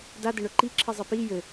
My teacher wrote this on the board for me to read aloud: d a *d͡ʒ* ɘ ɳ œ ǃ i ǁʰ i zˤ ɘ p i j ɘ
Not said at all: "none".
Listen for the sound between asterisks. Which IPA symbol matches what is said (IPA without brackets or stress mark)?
d